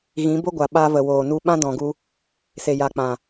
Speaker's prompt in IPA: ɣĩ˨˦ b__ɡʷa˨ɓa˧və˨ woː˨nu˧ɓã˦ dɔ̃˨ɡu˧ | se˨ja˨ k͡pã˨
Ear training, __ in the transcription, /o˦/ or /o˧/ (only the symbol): o˦